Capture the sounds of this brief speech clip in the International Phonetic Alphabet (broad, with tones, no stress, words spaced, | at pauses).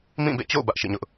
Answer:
mĩ˦˨bḛ˦˨t͡ɕo̰˦˨ʊ̯ bä˦ʔʃḭ˦˨ɲʊ˦ʔ